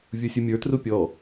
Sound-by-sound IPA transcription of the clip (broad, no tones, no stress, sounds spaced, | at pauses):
vʲ u sʲ u mʲ ə˞ t r u pʲ ɔ